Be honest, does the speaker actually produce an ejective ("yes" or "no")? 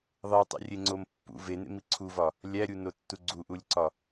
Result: no